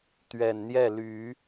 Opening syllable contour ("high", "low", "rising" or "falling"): low